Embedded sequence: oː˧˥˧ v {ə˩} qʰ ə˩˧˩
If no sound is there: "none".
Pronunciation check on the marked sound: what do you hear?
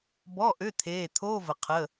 ə˩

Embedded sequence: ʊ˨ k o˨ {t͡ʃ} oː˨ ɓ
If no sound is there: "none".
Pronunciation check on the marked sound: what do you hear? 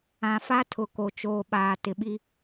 t͡ʃ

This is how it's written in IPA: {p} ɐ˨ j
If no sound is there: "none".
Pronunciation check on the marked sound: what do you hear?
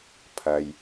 pʰ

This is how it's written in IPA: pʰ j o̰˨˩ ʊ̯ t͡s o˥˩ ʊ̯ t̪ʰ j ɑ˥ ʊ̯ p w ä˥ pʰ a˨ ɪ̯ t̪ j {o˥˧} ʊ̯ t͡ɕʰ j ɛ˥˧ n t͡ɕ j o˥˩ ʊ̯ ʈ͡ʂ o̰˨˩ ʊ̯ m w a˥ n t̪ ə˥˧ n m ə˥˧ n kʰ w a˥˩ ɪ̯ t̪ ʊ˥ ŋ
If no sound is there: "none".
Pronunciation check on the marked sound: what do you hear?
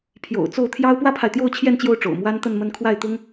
o˥˧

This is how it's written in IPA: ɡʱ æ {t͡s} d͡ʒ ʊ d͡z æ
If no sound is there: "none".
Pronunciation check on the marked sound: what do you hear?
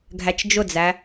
t͡ʃ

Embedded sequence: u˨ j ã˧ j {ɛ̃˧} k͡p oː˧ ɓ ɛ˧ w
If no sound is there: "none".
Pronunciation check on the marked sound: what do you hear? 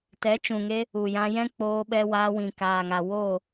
ɛ̃˦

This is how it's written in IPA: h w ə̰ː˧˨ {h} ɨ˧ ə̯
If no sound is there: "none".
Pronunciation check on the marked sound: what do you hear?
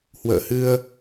h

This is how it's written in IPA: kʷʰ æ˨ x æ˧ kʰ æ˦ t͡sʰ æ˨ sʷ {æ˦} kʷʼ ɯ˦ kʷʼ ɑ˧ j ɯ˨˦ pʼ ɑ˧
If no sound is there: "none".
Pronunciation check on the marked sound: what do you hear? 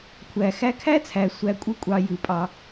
æ˧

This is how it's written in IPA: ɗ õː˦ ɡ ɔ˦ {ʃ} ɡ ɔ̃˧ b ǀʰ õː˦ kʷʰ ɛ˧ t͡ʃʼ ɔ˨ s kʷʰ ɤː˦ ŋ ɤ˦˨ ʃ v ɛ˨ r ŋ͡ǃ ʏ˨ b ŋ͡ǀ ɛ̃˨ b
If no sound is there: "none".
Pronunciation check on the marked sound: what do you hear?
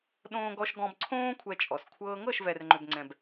ʃ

